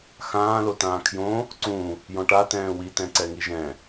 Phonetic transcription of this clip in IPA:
xãː lotãːkʰjõ | ǀũ | jɔ̃ʈa tɛ̃ːwi tɛ̃ǀɛŋiʒɛ̃

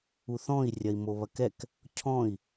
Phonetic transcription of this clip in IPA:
uθɔ̃i̯ rʲɐi̯moβɐkɛk | cʰɔ̃i̯

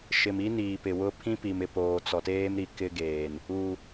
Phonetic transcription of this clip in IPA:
ʃɪ˨mi˦niː˨ pɪ˨wʊ˦ pʰĩ˦pi˨m ɪ˨poː˨ t͡sɔ˨teː˦m ɾi˨kɪ˦ɡeː˨n | u˨

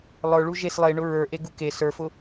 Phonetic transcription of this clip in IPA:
lˠə˞ɭu ʒes lˠeɳʊ ɹə˞ʔeɡu ke sə˞fʊ

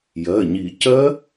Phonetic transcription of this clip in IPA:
jɜ˩˧˩ɲi˨˩˦ cɜ˦˥

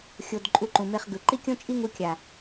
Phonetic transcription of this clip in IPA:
xʲo˧d ǃʼu˧ǃũ˨me˧χɡɯ˨ ǃi˦kʲõ˦t͡ʃʼi˦ŋu˧ kʲa˨

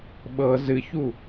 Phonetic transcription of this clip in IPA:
ɓɤ zɨçu

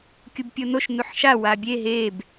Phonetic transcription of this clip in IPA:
kʲubpʲonoʃ nuħʃa wabʲe ɦeb

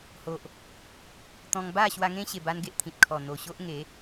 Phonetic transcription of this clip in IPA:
ho˨ʔ | t̪ɔ̃˧ŋ ba˥˧ɕwa˧ŋẽ˦ ɕe˧ba˦nɡe˦ʔt̪ʰĩ˨t̚ kʰɔ˨˩n̪o˨˩ɕo˦ʔ ŋe˨˦

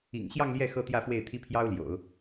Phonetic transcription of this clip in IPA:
ḭ˨˩ŋɕjɑ˥˧ŋ ljɛ˥˩ xɤ˥t̪jä˥˧fwe˥˩ɪ̯ t̪ʰi˥pʰjɑ˥ʊ̯ljo̰˨˩˦ʊ̯

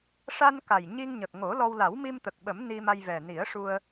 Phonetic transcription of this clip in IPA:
ʂa˧n ka˨˩jɲi˧ŋɲə˨˩k̚ ŋo˨˩˦lɔ˧w la˨˩˦wmi˧m t̪ə˨˩k̚ɓə˨˩˦m ni˧ma˧jvɛ˨˩ ni˨˩˦ə̯ʂu˧ə̯

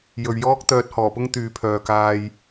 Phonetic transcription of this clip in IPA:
jɵ˨ɥjɔː˥k̚ t̪œː˧t̚hɔː˨˩pʊ˥ŋ t̪yː˨pʰœː˨kaː˧j

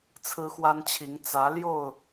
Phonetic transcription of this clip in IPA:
t͡sʰɹ̩˦xwa˦nt͡ɕʰi˨˦ŋ t͡sä˨˦ljo˥˨ʊ̯

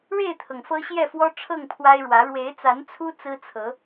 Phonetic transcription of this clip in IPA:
ɻe˥˨ɪ̯t̪ʰɤ˩ŋ fɤ˦ɕjɛ˥˨fwɔ˦ ʈ͡ʂʰɤ˥˨ŋpʰwa˦ɪ̯ɻwä˨˦ ɻwe˨˦ɪ̯t͡sa˨˦nt͡sʰu˦ t͡sɹ̩˦t͡sʰɤ˨˦

